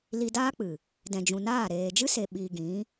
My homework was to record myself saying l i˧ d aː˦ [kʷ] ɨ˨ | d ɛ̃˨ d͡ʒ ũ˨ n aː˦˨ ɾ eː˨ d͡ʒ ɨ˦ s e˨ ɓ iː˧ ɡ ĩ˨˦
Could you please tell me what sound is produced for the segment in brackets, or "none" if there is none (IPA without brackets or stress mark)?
k͡p